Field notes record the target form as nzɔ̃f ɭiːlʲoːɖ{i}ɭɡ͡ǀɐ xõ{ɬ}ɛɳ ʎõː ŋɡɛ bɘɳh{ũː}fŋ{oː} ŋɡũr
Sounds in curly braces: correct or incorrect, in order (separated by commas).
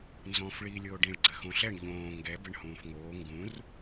incorrect, correct, correct, correct